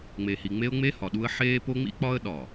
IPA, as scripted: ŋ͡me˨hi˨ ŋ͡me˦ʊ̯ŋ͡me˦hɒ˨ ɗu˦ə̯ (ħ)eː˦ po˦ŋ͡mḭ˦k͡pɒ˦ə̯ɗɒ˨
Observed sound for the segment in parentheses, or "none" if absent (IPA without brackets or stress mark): ħ